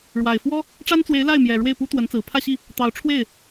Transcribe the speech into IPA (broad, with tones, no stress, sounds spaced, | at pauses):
ɻ w a˨˩ ɪ̯ f w ɔ˥ | ʈ͡ʂ a˥ n t͡s w e˧˥ ɪ̯ l a˥˩ ɪ̯ m j ɛ˨˩ ɻ w e˥˩ ɪ̯ p u˥ t̪ w ə˧˥ n t͡s ɹ̩˨˩ pʰ ä˥˧ ɕ i˥˩ | t̪ ɑ˧˥ ʊ̯ ʈ͡ʂʰ w e˥˩ ɪ̯